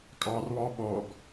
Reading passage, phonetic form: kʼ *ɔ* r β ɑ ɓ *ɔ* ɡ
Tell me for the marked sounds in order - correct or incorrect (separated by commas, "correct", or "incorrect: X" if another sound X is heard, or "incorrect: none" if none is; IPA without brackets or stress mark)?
incorrect: ɑ, correct